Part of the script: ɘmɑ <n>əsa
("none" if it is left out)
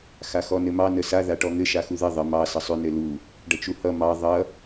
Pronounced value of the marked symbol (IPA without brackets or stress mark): n